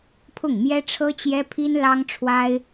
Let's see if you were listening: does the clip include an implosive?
no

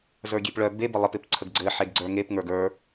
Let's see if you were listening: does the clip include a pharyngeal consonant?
yes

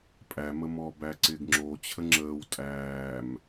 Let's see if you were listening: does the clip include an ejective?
yes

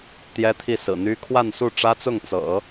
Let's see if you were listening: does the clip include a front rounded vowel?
yes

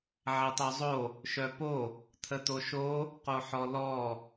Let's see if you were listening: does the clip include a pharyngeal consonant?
yes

